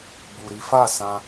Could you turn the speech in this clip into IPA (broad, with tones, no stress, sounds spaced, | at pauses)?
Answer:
b u˨ ɾ i˨˦ f a˦˨ s ã˧